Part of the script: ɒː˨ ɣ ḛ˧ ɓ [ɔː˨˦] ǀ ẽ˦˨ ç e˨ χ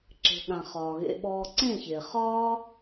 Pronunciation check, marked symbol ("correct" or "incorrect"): incorrect